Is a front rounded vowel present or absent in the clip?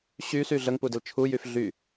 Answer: present